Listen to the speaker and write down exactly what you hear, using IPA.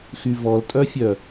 x y v ɔ l tʼ œ fʲ œ

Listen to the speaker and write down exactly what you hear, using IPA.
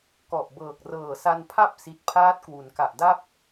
k ɔ˨˩ ʔ b ɤː˨˩ k̚ r ɤː˨˩ s a˧ n pʰ a˥˩ p̚ s i˨˩ t̚ pʰ aː˦˥ t̚ k w u˩˦ n k a˨˩ ʔ d a˥˩ p̚

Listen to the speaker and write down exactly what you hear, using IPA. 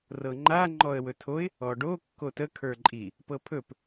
r ɤ ŋ͡ǃ a ŋ͡ǃ ɔ ə̯ w ɵ tʰ o ɪ̯ | ɔ ɖ o kː o t ə kʰ ə˞ ǃʼ i | p ɤ pʰ ɵ p

